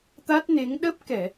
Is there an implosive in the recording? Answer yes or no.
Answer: yes